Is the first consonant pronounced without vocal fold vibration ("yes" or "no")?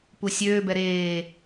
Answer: yes